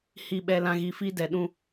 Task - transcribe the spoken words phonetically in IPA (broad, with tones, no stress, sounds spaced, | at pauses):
h i˨ ɓ ɛ˨ l ã˨ ɣ i˨ f i˦ d ɛ˨ ɗ ũ˦